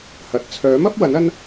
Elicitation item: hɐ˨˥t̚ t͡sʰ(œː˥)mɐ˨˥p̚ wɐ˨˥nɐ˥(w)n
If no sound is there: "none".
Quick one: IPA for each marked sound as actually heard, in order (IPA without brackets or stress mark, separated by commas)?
œː˨˥, none